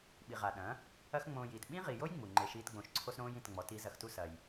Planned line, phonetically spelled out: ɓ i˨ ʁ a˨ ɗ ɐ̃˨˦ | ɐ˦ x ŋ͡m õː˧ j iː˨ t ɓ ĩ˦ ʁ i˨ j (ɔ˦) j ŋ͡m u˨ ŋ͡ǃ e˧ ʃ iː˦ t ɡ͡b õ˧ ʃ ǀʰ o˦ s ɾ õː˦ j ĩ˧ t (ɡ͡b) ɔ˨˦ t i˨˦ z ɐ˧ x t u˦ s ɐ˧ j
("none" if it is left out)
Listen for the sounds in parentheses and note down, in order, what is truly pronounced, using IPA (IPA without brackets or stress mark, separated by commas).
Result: o˦, ŋ͡m